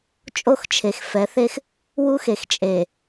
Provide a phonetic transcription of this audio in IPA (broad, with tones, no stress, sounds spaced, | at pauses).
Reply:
t͡ʃʼ o˦ x t͡ʃʰ e˨ x f ɛ˨˦ θ e˦ x | w u˦ x e˨ x t͡ʃʼ e˨